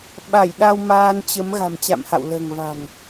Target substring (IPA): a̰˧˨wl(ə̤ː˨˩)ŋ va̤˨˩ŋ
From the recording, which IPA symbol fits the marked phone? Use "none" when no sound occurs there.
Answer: ə̤ː˨˩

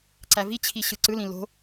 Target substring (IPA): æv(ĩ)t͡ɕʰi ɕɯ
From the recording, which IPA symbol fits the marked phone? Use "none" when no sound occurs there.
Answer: i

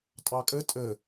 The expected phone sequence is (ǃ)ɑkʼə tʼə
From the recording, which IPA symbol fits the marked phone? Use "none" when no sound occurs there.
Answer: tʼ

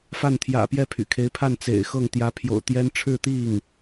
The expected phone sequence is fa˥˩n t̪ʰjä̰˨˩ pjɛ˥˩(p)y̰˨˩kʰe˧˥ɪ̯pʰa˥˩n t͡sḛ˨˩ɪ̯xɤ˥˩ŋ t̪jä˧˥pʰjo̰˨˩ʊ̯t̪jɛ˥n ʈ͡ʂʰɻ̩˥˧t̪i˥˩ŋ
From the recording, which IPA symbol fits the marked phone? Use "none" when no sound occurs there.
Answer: pʰ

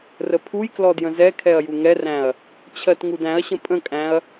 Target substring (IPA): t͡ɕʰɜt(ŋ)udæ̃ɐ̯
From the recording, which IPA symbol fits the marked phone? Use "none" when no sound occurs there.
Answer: ŋ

